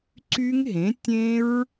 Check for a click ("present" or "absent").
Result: present